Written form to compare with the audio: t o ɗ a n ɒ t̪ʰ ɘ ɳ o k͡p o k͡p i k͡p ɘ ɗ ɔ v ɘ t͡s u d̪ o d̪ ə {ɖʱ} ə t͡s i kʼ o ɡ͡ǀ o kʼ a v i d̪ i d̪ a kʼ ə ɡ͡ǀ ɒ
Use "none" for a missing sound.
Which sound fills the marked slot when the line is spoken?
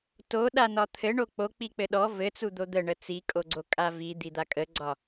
ɳ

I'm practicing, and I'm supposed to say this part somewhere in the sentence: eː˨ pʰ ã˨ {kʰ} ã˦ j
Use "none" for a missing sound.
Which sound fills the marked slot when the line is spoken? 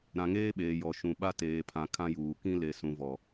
kʰ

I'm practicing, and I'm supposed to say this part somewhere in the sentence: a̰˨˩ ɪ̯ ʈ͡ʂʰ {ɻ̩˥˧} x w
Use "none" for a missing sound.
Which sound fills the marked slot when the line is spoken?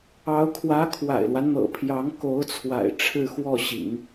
ɻ̩˥˧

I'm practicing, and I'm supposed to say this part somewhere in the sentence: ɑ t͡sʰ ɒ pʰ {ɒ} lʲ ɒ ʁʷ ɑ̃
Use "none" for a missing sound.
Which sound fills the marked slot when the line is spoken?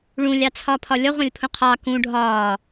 ɒ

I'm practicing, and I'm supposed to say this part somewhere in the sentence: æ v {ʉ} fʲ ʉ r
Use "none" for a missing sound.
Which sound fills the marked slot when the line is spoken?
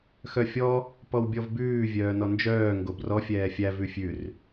ʉ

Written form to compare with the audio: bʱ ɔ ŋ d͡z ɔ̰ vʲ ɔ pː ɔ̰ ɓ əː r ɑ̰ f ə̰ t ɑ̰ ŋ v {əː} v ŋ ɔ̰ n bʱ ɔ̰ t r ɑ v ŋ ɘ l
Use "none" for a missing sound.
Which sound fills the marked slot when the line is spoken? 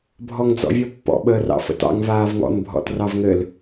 aː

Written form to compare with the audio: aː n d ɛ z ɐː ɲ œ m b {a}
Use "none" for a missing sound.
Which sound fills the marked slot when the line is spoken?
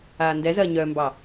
ɑ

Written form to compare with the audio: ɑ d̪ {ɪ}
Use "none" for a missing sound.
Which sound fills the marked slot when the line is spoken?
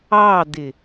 ɪ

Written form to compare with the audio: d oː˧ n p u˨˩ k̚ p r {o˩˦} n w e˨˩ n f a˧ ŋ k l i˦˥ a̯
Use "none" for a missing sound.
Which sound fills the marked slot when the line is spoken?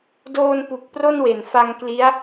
o˥˩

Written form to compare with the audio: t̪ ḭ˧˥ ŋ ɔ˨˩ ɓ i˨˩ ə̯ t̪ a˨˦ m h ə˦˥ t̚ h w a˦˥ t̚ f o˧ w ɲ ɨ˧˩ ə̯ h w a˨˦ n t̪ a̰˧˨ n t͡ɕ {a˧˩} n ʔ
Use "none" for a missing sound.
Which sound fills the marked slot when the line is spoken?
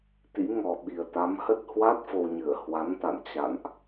a̰˧˨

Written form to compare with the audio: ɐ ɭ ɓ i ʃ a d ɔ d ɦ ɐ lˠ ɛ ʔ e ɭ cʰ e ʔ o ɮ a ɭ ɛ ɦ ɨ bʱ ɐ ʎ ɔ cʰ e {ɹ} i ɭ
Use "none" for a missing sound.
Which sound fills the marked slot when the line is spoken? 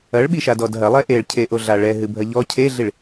ɮ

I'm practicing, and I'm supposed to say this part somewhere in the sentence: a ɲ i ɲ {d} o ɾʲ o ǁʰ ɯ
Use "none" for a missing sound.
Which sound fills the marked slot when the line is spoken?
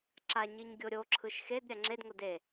ɡʲ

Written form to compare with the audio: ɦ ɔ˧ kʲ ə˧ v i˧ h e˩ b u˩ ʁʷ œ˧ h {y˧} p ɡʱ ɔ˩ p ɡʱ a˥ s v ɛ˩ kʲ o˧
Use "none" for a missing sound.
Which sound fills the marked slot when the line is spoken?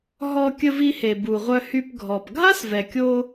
y˧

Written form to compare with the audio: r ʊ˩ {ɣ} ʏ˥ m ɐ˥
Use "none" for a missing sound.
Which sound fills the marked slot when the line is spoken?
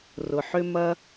ħ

